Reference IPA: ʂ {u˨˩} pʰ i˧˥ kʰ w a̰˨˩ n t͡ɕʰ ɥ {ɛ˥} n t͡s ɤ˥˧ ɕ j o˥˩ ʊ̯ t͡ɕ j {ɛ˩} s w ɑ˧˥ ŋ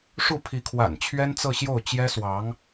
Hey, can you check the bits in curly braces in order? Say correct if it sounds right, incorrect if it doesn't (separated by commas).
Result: incorrect, correct, incorrect